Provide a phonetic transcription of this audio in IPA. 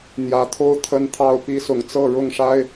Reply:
n̪jä˨˦t̪ʰo˦ʊ̯ t̪ʰə˦nt̪ʰɑ˥˨ʊ̯ pi˦sʊ˨˦ŋt͡sɤ˥˨ ɻʊ˥˨ŋʂa˦ɪ̯

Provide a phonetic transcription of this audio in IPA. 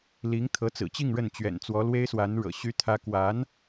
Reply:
li˧˥ŋt̪ʰɤ˧˥t͡sɹ̩˨˩t͡ɕi˥˧ŋ ɻə˥˩n t͡ɕɥɛ̰˨˩nt͡swɔ˧˥lwe˥ɪ̯swa˧˥n ɻɤ̰˨˩ ɕy˥t̪ʰä˥ kwa˧˥n

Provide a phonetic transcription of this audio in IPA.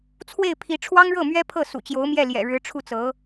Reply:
t͡sʰwe˥˩ɪ̯pʰi˧˥ ʈ͡ʂʰwɑ˥ŋɻɤ˥˩mɥɛ˥ pʰɤ˥˩ sṵ˨˩t͡ɕjo˧˥ʊ̯mjɛ˥˩ ljɛ̰˨˩ɻɻ̩˧˥ʈ͡ʂʰu˥˩t͡sɤ˧˥

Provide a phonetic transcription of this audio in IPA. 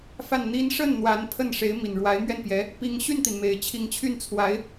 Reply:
fa˥˩nn̪i˥n ʂə˥˩n n̪wa˧˥npʰə˥˩nʂe˧˥ɪ̯ mi˨˩nɻwa˧˥ɪ̯mɥɛ˥˩npjɛ˧˥ | pi˧˥ŋɕy˥˩nt̪i˩n me˨˩ɪ̯t͡ɕʰi˧˥ŋt͡ɕʰy˥˩nt͡sʰwa˧˥ɪ̯

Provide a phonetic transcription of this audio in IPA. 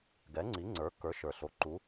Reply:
ɡɛ˨˥ŋ͡ǀi˨˥ŋ͡ǀə˞˨˥kə˞˨˥ ʃə˞˨˩ɬo˨˥ ǃu˨˥

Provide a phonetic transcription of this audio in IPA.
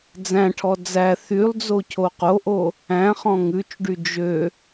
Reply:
d͡zæ̃ʈʰɔ d͡zæ θylˠd͡zo cʰoqoʔo | æ̃χɔ̃ ŋʉt͡ʃɖy d͡ʒø

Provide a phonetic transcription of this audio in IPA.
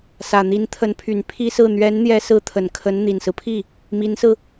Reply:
sä˨˩n̪i˧˥nt̪ʰə˧˥npʰy˨˩n pʰi˥sɹ̩˥˩ n̪ɥɛ˧˥nn̪jɛ˧˥sɹ̩˧˥ t̪ʰə˨˩nkʰə˧˥n n̪i˨˩nsɹ̩˦pʰi˥˩ | mi˧˥nsɹ̩˧

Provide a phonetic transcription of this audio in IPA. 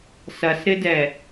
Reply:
sɐsɾɪdɛ

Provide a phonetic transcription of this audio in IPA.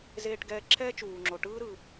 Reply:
zeː˧ʈɡɛː˧ ǁʰɛː˥t͡ʃuː˩ŋ͡ǁo˩ ʈɯː˥ɾɯ˩

